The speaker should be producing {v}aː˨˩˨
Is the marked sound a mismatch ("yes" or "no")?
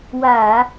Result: yes